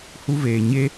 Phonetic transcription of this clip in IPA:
hu˦veː˨ ɲe˦

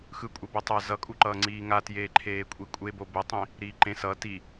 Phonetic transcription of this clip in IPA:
xɯ kʷʼɛbotˤa zʌkʼuǃʌː ŋ͡ǀiːŋatjeː ǃʰeːkʷʼikʷʼebo bɛtˤĩ | ɾiːǃẽ sʌ ti

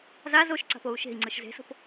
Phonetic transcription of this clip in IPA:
zaz oʃǀa̤p ou̯ʃe̤i̯ŋ͡ǀɯʃ ze̤so̤p

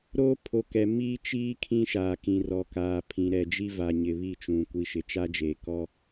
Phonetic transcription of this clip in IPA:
ɾoː˦pʰo˨kɛ˨ miː˦t͡ʃiː˦ kʰĩ˦ʃaː˨ kĩ˨rɔ˨kaː˨pʰĩ˨ ɾɛ˨d͡ʒi˦va˨ ɲɪ˨βi˦˨t͡ʃũ˨ kʷi˨ʃɪ˨t͡ʃa˦d͡ʒe˨ kɔ˦

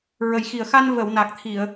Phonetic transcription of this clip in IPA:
ɹə˨˩jxi˨˩ə̯xa˧n və˨˩˨wna˨˩k̚ t̪ʰi˨˩˨ə̯

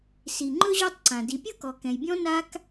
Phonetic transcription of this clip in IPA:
si˩ ŋ͡ǃɵ˥ʑɔ˦tˤǀã˩ di˨pʲɤ˥kɔ˨ kɛ̃˨jbʲɔ̃˥ na˥k

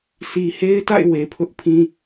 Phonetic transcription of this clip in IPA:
sʰi˨he˦ɪ̯ta̰˦˨ɪ̯ we˨pʰʊ˦ʔpʰĩ˦

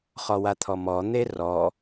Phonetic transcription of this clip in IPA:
χɔwat̪ʰɔmɔ n̪erɔ

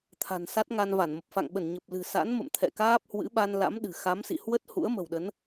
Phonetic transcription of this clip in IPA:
t̪ʰa̤˨˩nsa˦˥t̚ ŋa˧nva˧˩nmə˨˩p̚ fa̰˧˨ŋɓə˧˩nɲə˨˩p̚lɨ̤˨˩ sa̰˧˥nmə̰˧˨m t̪ʰɛ̰˧˨kaː˦˥p̚hwɨ̰˧˥ɓa˧n la̰˧˥mɗɨ̤˨˩ xa˨˦msḭ˧˨ hwə˦˥t̚ hṵ˧˥ə̯mə̤˨˩wɗə˨˦n

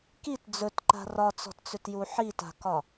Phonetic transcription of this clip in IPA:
kit d͡zɵtǃa̤ rɒt͡sɔ̤tt͡sʏtju ħita̤kɒ

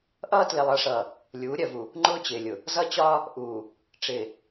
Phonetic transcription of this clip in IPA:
ʔʌː˦tlɪ˨lˠʌ˨˦ʂʌː˨ | lʲuː˨˦ɾʲɜ˨vu˨ | ŋ͡ǃʊː˦t͡ɕɪː˨lʲʊ˨ | zʌ˦t͡ɕɒː˦ | ʔuː˨ | ʈ͡ʂɪː˨

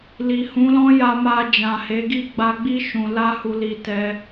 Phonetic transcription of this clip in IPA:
li˨hũ˨˦lɔ̃˦ ja˧ma˧ d͡ʒã˨he˨˦ɡi˦˨ ɡ͡ba˧ɡ͡bi˦ ʃũ˧ la˦hu˧li˧ tɛ˦

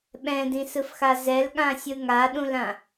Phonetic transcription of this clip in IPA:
ɓɛ̃dĩsɯfxa zɛlɠãsʲɯ ŋaɗũlã

